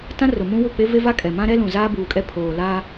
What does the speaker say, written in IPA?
t ã˦ r ʊ˨ m ũ˦ w ʊ˦˨ k͡p e˦ v e˦ v a˦ kʼ ɛ˨ m ã˦ ɾ ɛ˦ l ũ˨ z aː˦ b uː˨ kʼ ɛ˦ pʰ oː˨ l aː˦

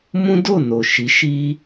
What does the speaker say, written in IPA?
m ũ˦ d o˦˨ n o˨ ʃ i˨˦ ʃ i˦

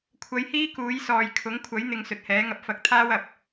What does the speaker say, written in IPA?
kʷʰ ɐ˨˧ j h iː˥ k uː˨˥ j s ɔː˨ j kʰ ʊ˨˥ ŋ kʷʰ ɐ˨˥ j n̪ ɪ˨ ŋ s ɵ˨ t̚ h ɛː˨˥ ŋ ɐ˧ p̚ f ɐ˧ k̚ t̪ʰ aː˥ w ɐ˨ p̚

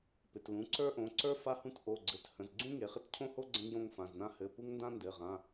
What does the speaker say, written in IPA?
p ɪ˩˧˩ t l ũ˩˧˩ ǀ ə˞˥ ʔ õ˩˧˩ ǀ ə˞˥ f a˥ h ũ˥ t ʔ o˩˧˩ ɡ͡ǀ ɘ˩˧˩ t h ə̃˩˧˩ z ɡ͡ǀ ũ˥ ŋ e˩˧˩ χ ɪ˥ t cʰ õ˥ h o˥ ɡ͡ǀ ə̃˥ ŋ j õ˥ ŋ f ã˩˧˩ z n ã˥ h ɘ˩˧˩ p u˥ ŋ n d ã˥ n d ɘ˩˧˩ ʁ ã˩˧˩

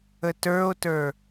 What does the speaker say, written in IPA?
ə t ə˞ o̯ t ə˞

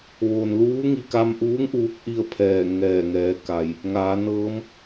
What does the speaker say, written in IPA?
ʋ oː˩ n l uː˧˥ ŋ i˧˩ k a˧ m ʔ uː˧˥ ŋ ʔ uː˧˥ k̚ ʔ i˥˨ ə̯ pʰ ɛː˧˩ ŋ ɛː˧˩ ŋ ɛː˩˧ k a˩ j | ŋ aː˩˧ n ɤː˧˥ m

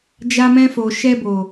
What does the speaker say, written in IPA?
d͡ʒ a˧ m ɛ̃˧ f o˨ ʃ ɛ˧ b o˨

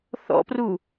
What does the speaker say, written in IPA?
θ ɔ̰ p r u

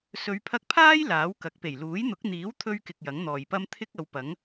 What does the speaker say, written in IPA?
s ɵ˨˧ ɥ pʰ ɐ˧ k̚ pʰ aː˥ j l aː˨˥ w k ɐ˨˥ k̚ p e˨˩ j l uː˨˥ j n̪ ʊ˨˥ k̚ n̪ iː˨˥ w t̪ʰ ɵ˧ ɥ k ɪ˨ k̚ j ɐ˨˥ ŋ n̪ ɔː˨ j p ɐ˥ m t̪ʰ ɪ˥ k̚ ɐ˨˧ w p ɐ˨˥ ŋ

